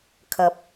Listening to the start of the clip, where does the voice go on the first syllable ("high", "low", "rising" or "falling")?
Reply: low